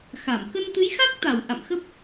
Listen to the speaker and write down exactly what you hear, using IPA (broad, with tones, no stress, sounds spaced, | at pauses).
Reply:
x a˧˩ m k ə˧ n t̪ ɨ˨˦ j x a˦˥ k̚ t̪ a˧˩ w ʔ a̰˧˨ m x ə˦˥ p̚